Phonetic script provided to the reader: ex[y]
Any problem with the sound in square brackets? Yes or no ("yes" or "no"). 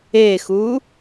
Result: yes